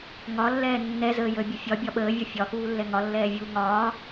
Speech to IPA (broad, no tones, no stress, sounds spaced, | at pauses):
ŋ ɒ lː ɛː nː ɛ z əː j əː bʲ ə fʲ ɒ bʲ ɒ ɓ əː vʲ ɒ fʲ ɒ x uː lː ɛ ŋ ɒ lː ɛː vʲ uː ŋ ɒː